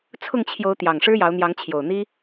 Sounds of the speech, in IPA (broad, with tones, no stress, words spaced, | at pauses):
t͡sʰʊ˥˨ŋt͡ɕʰjo˨˦ʊ̯ t̪jɑ˨˩ŋʂɻ̩˦jɑ˨˦ʊ̯n̪jɑ˨˦ŋ t͡ɕʰjo˨˩ʊ̯n̪i˦